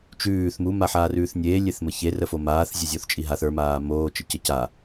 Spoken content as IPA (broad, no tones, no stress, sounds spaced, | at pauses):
t͡ʃ ʉː θ m u m a ħ aː r ʉː θ nʲ eː lʲ e θ m ə ç e r ə f o m aː θ zʲ e zʲ o θ t͡ʃʼ i ɦ a θ ə˞ m aː m oː t͡ʃ ə c ə c a